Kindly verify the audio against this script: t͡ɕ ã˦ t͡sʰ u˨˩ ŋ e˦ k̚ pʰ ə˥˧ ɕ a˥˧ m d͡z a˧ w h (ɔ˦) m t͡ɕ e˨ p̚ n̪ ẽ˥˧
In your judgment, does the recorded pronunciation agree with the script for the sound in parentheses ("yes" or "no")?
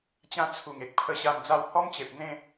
yes